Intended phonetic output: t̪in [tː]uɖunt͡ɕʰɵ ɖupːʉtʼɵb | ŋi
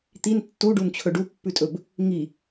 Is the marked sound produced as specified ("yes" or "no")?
yes